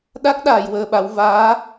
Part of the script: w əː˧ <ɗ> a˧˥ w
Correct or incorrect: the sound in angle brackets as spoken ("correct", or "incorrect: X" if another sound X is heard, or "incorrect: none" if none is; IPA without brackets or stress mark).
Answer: incorrect: ɓ